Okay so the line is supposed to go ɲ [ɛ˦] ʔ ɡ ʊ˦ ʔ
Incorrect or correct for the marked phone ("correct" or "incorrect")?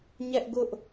correct